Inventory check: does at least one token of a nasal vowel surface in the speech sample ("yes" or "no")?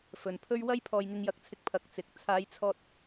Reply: no